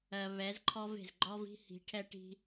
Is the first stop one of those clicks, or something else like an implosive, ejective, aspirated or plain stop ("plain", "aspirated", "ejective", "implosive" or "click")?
click